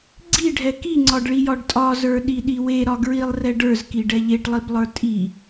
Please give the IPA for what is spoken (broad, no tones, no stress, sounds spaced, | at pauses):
ɡ͡ǀ i ɖʱ ɛ k i ŋ͡ǀ ɒ ɖ ɭ i j ɒ ɖ tʼ ɒ z ə˞ ɗ i ɗ i w e ɾ ɒ ɡ ɹ i lˠ r ɛ ɖ ə˞ z k i ɖ ɛ ʎ e ʈ lˠ i b lˠ ə˞ tʼ i